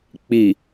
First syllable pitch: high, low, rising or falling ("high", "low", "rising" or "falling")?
low